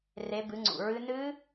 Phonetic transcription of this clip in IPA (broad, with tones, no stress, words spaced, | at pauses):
re˨˦bɨ˨˦ŋ͡ǀṵ˨˩ɹɨ˦˥ nɨː˦˥